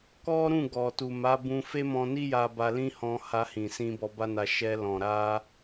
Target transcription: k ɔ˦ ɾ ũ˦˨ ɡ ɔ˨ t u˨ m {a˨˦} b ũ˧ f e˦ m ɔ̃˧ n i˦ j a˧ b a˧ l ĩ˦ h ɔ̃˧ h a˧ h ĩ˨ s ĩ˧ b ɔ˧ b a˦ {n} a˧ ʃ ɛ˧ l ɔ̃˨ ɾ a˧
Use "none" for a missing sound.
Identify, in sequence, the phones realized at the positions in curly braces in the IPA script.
a˨˦, n

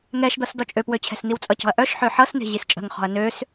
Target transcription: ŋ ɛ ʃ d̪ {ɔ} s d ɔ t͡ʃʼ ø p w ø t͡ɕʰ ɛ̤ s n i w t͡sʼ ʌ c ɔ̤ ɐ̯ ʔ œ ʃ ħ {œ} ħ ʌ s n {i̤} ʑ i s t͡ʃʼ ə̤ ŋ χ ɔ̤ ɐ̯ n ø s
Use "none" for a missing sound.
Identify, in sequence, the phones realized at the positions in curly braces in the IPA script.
ʌ, ø, e̤

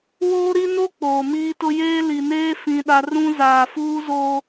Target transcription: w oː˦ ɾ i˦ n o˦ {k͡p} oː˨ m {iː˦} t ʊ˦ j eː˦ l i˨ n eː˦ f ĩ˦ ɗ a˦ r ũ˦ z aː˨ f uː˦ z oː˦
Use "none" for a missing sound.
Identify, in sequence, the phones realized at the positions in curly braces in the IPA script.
k͡p, iː˦

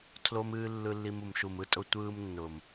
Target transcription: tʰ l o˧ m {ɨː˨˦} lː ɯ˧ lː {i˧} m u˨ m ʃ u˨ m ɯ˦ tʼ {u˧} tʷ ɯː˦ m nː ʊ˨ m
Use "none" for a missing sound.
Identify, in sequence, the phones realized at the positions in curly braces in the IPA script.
ɨː˧, i˧, ʊ˧

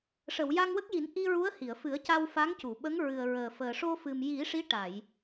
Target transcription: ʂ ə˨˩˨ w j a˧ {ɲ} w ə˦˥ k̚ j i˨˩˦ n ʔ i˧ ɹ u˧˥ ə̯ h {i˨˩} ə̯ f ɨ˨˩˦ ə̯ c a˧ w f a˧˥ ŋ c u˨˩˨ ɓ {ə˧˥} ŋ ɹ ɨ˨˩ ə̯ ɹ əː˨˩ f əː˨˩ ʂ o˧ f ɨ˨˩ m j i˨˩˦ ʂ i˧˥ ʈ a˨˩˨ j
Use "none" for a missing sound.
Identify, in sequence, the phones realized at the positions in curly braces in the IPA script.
ŋ, i˨˩˨, ə˧˥

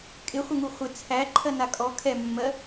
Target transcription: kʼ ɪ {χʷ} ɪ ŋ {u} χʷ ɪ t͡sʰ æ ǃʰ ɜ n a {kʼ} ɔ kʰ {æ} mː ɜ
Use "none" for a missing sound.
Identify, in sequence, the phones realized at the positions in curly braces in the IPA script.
χʷ, u, kʼ, ɛ

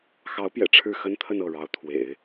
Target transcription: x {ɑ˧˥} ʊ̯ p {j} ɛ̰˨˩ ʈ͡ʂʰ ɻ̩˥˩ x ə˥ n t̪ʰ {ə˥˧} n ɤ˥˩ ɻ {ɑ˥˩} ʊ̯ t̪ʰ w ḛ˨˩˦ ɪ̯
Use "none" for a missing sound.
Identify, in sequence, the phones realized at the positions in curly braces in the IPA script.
ɑ˧˥, j, ə˥˧, ɑ˧˥

